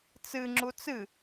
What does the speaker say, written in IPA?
t͡sɨ ŋ͡ǁut͡sɨ

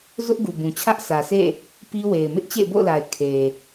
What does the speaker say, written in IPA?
zʊ˦ʔɡu˨bũ˨ t͡ɕʰä˦ʔsʰä˨sḛ˦˨ | pi˦we˨ɪ̯ mɪ˦ʔt͡ɕḛ˦˨ɪ̯bo̰˦˨ʊ̯la˨ɪ̯ kʰe˨

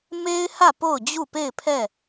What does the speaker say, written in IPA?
me˦ɪ̯hä˦˨ po˦˨ʊ̯d͡ʑu˦˨ pe˦˨ɪ̯pʰɛ˦˨

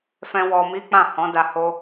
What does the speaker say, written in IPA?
fɛ̃˦ wɔ˧mi˦ k͡pã˦˨hɔ̃˨˦da˧ ho˦

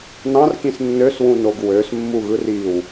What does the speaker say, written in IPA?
nɑ̃rkĩs nːøswũnoɡ wøsmːuɣɯr iw

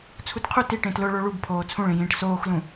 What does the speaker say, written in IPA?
t͡sʰutqʰu ti ʈẽtlʊ ɭoɭubpʰoː t͡sʰũɭĩjĩːʈ soːxlũ

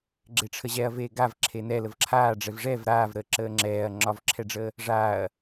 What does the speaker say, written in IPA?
ɡ͡ǁeʈ͡ʂʰəʑɛɐ̯ veɡav ǁʰenɛ ləvǁʰaː ɖ͡ʐɛvʐɛv ɾaːvɾəːǁəː ŋ͡ǁɛːɐ̯ ŋ͡ǁɒvǁʰɛɖ͡ʐəː | ʐaːɐ̯

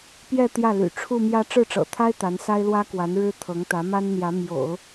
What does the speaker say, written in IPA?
pjɛ˥˧ t̪jä˥˩ly̰˨˩ ʈ͡ʂʰu˥˧mjä˥˧ ʈ͡ʂɻ̩˥˩ʈ͡ʂɤ̰˨˩t̪ʰa˥ɪ̯ t̪a˧˥n sa˥ɪ̯lwä˥kwa˧˥n ɻɻ̩˥ t̪ʰɤ˧˥ŋt̪ä˧˥ma˥nn̪jä˧˥ mjo̰˨˩˦ʊ̯

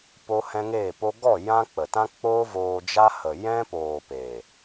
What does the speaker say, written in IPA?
po˦ hɛ̃˦ŋeː˦˨po˦ ɡɔ˦˨ jã˧ k͡pə˨tã˦k͡poː˦ voː˧d͡ʒa˦hə˨ jɛ̃˦poː˨ pe˨

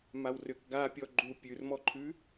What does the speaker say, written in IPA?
mawrʏk ɡapʲɔ ɡ͡ǃu pʲʉrmɔǃʰʉ

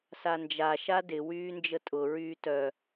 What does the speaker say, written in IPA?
sand͡ʒa ʃadɪ wyːnd͡ʒətʼʊ ɹyːtœ

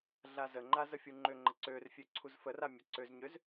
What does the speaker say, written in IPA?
ɮazəŋ͡ǃa zəfʲuŋ͡ǃøŋ͡ǃə ǀørfʲø ǀʰuzfəra mʲəǀøzɲøz

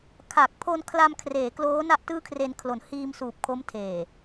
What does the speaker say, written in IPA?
kʰa˨˩k̚pʰo˧n kʰla˧mkʰreː˩˦ kloː˦˥ na˥˩ʔtɯː˥˩kʰre˧n kʰlo˩˦nhiː˧msuː˨˩p̚ kʰo˦˥mtʰeː˨˩

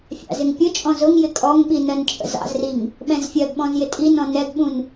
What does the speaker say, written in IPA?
fʲɑ̰zɪŋpʲʊt͡ʃʼɔ̃ zʊŋjɪ kʼɔŋɓi nɜnt͡ʃʼə̰zɑ̰zriŋ | ɓɛ̃zfʲɜɡɓɔ̃z jɪtʼinɔ̃ nɛɡɓũn

